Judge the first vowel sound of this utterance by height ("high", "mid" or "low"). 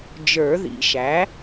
mid